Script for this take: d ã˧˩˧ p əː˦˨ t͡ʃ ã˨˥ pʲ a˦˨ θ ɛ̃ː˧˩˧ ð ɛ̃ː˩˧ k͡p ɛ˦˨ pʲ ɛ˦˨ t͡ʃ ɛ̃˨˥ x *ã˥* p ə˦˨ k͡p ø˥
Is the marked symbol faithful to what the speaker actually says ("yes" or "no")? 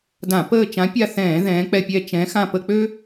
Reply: no